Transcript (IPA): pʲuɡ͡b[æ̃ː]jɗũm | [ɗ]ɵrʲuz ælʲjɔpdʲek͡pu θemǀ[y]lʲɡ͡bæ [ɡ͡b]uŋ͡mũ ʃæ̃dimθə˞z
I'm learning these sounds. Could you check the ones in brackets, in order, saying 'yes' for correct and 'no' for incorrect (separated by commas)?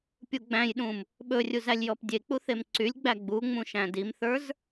no, no, yes, yes